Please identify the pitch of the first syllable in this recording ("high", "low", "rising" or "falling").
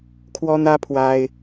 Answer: high